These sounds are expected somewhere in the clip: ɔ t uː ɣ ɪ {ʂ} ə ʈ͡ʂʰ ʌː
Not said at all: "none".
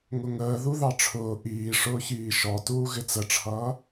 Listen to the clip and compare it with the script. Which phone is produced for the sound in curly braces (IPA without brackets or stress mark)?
t͡s